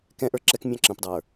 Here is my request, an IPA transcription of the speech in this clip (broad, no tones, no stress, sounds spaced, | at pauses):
k ɛ̃ ʔ ə˞ ǁ ɛ k mʲ ɑ̃ ǁ ə̃ p dˤ ə˞